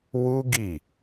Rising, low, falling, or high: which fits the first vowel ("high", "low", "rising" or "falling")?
high